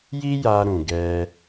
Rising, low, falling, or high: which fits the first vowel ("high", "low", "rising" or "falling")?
high